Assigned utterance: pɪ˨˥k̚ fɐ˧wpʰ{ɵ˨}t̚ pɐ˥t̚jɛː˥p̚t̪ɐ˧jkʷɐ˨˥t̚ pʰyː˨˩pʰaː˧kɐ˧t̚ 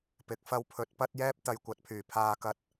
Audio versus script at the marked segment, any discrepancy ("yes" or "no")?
yes